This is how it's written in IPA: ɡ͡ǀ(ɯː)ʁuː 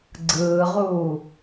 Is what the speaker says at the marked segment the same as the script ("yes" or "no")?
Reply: yes